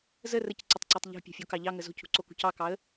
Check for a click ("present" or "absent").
present